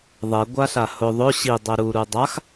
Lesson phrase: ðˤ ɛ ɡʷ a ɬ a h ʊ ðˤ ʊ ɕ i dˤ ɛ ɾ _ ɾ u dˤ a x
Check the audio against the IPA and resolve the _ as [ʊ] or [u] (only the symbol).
u